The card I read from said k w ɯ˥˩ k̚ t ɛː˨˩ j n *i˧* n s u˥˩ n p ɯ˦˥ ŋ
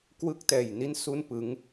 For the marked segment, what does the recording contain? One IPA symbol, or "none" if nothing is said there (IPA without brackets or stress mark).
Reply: i˥˩